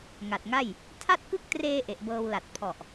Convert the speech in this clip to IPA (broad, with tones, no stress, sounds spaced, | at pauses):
ŋ a˨˩ t̚ ŋ a˥˩ j | tʰ a˥˩ t̚ k ɯ˥˩ k̚ t r eː˧ ʔ e˨˩ ʔ b ɤː˧ w l a˨˩ t̚ pʰ ɔ˨˩ ʔ